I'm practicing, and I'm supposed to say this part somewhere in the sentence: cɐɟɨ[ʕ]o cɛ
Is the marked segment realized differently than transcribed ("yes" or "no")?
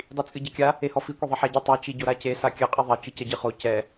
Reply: yes